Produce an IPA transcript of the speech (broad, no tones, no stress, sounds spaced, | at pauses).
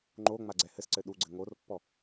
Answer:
ŋ͡ǃ o ŋ͡m a ɡ͡ǀ ɛ h ɘ s ǀ ɘ ɗ u ɡ͡ǀ ɘ ŋ o r pː ɔ